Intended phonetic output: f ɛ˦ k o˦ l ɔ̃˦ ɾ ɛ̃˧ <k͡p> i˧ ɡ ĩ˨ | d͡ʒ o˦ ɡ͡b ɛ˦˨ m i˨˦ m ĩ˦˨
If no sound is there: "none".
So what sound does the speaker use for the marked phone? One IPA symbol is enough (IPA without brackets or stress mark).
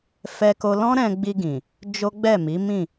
ɡ͡b